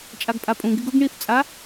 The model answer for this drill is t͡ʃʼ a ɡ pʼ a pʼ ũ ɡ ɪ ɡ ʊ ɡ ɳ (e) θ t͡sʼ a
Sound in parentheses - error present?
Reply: yes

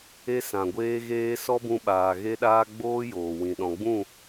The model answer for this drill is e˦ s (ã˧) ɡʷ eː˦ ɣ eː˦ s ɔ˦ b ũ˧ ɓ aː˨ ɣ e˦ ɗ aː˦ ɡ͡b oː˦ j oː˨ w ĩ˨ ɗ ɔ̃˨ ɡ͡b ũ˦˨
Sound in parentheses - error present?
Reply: yes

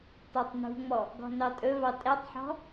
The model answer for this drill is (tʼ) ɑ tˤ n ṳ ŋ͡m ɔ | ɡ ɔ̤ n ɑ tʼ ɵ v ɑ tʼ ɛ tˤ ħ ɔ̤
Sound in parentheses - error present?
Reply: yes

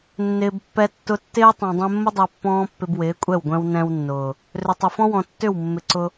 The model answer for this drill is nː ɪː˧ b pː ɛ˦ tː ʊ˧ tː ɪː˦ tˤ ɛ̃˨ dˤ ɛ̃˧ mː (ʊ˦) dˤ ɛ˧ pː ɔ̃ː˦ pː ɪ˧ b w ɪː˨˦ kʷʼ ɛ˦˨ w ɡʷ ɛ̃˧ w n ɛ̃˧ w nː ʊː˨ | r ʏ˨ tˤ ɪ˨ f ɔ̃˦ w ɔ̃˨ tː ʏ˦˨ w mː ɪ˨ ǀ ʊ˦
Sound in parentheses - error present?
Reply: no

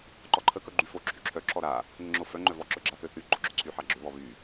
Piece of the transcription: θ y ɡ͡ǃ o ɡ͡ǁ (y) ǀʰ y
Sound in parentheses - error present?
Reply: yes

